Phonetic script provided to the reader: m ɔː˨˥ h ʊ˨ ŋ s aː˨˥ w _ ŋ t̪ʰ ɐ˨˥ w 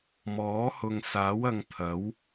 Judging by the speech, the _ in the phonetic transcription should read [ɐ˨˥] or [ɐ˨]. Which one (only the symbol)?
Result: ɐ˨